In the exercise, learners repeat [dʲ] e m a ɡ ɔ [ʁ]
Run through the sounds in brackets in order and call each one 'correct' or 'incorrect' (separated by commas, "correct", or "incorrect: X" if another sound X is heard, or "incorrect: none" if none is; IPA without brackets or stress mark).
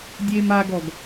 correct, incorrect: ɡ